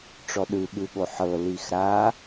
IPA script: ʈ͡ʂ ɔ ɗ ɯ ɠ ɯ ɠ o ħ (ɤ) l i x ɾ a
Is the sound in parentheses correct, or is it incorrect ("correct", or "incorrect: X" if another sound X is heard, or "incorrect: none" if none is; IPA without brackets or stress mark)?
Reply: correct